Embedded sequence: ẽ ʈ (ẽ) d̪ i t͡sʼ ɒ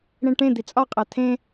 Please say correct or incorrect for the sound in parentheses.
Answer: correct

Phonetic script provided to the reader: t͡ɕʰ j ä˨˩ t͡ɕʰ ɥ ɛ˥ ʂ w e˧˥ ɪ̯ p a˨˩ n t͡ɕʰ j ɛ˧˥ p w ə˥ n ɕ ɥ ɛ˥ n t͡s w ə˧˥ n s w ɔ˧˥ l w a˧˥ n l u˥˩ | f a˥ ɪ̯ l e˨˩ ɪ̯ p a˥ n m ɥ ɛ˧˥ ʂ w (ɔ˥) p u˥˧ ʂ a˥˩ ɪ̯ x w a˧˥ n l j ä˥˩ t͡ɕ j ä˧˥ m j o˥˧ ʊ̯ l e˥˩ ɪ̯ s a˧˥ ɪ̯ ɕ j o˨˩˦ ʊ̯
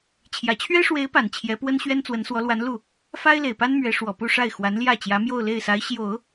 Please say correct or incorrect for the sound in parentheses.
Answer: incorrect: ɔ˨˩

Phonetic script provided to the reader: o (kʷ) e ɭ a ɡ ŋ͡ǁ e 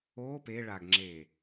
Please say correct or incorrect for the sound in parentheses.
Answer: incorrect: p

